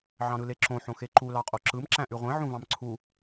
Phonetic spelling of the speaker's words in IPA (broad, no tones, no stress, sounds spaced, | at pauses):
ʕ ɑ̃ ɾ ɯ l e ǁ õ ħ õ x e ǃ u l ɑ qʼ o ǁ ɯ m ǁ æ̃ ʔ y ʁʷ ẽ ʕ ũ v ɑ̃ m ǀʰ u